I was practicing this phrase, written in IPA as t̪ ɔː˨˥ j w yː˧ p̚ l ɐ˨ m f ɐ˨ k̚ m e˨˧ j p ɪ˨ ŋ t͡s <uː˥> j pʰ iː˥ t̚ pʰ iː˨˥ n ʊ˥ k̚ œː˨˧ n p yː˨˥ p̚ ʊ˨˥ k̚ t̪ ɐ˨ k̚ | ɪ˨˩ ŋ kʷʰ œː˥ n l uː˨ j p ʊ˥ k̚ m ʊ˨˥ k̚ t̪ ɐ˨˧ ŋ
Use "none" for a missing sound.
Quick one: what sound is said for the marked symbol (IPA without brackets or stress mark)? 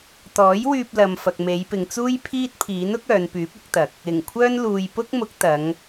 uː˥